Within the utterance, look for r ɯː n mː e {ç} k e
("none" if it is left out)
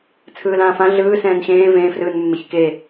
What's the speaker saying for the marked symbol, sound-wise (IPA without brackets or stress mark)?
ç